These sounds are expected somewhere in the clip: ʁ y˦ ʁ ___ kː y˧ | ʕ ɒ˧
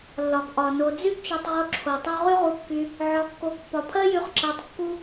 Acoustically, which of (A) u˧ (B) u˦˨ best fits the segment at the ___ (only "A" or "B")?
A